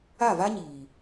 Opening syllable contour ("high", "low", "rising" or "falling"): falling